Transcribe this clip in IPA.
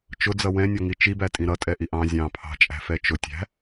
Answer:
t͡ʃ ʊ d͡z ʌ w ɛ̃ nʲ ɔ ŋ i t͡ʃ i b æ tʼ ĩ ɾ ʌ tʼ ɛ ʔ i ʔ ɑ̃ zʲ ɑ̃ pʰ ɑ̤ t͡ʃʼ æ̤ f ɛ t͡ʃ ʊ tʲ æ̤

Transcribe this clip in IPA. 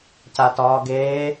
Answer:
c a t ɒː ɡ eː

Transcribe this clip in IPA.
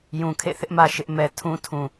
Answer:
j ũ˨ kʰ ḛ˦˨ θ ɪ˦ ʔ m ä˨ ʃ ɪ˦ ʔ m ɛ˨ tʰ ũ˦ tʰ ũ˨

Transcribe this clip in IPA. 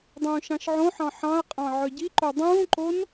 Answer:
dˤ ũː ʃ ɑ̃ ʃ ʕ õ ħ ɑ̃ ħ ɑ̃ ɐ̯ qʼ ɑ̃ ʕ œ ɟ i ǃ o dˤ ũː ǃ o n

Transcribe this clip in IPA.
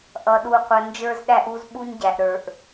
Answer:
ʔ ʌ˨ ɗ u˨ qʷ ə˨ n d͡ʒ ə˞˦ z ɗ æ˦ ʔ u˦ z ɓ u˦ ɲ ɟ æ˨ ʔ ɾ ə˞˨ ʔ

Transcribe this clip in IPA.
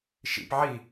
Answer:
ʃ ḭ p ʕ i

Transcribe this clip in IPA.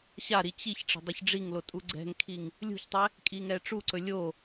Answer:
ɕ a ɾ i t͡ɕ i ç ʈ͡ʂ ɛ̤ dˤ ɵ ç ɖ͡ʐ i ŋ l o tʼ u ɡ͡ǀ ɛ̤ ŋ kʰ i ŋ | lʲ ṳ ç tˤ ɛ | kʼ i ŋ ɛ ʈ͡ʂ u ǀ ɵ lʲ o

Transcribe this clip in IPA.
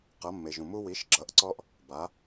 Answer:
q ʌ˩˧ mː e˩ ʒ ũ˩ m u˧ w i˩˥ ʃ ɡ͡ǁ ʌ˩˥ ʔ ǀ ɔ˧ ʔ | b a˩˧

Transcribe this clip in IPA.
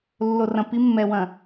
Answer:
lː o˨ r ɐ̃˨ p i˦ mː ɛ˨ w ɐ̃˨

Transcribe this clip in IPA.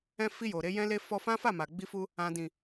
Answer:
ɛ̃˧ f i˧ j o˨ ɾ e˧ j ɛ̃˦ l e˦ f ɔ˧ f ã˦ f a˦˨ m a˨ ɡ͡b i˧ f u˧ | ã˨ d ĩ˨

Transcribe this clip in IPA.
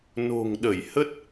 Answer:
n o̤˨˩ ŋ ɗ ə˧˩ j h ə˦˥ t̚

